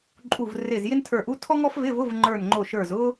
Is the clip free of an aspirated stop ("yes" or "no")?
no